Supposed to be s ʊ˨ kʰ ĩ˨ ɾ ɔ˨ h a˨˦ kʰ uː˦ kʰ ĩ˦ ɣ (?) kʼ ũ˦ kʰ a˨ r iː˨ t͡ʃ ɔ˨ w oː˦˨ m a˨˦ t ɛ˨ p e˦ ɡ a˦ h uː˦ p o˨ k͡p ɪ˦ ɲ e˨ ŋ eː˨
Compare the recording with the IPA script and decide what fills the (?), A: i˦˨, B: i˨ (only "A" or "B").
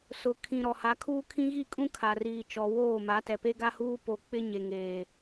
A